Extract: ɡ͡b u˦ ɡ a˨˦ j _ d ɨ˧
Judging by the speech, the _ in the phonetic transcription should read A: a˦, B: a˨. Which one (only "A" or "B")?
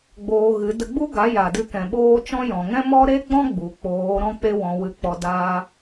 B